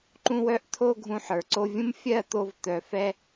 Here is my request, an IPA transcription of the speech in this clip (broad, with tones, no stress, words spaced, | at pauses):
ǃũ˧wœ˧ʔt̪ʰo˧ ɡʱũ˧ħə˞˨ǀo˧vʲũ˦m fʲɜ˦˨t̪o˧v t̪œ˨fɛ˧